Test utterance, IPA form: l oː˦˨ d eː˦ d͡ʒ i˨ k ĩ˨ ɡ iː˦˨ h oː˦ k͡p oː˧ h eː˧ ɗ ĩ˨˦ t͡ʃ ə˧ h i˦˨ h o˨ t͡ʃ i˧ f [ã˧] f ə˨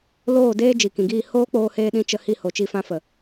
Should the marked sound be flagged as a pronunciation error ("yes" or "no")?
no